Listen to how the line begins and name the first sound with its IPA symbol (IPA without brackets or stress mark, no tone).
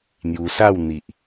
n̪